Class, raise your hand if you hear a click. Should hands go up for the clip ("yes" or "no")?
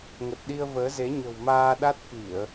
no